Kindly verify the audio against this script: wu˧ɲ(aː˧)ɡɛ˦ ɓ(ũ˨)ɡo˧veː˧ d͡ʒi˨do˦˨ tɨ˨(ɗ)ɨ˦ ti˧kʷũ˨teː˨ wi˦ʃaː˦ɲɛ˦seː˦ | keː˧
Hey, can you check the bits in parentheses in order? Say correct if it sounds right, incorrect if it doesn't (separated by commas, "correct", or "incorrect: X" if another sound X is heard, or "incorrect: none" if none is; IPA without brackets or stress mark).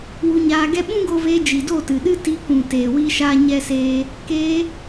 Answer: correct, incorrect: ũ˦, correct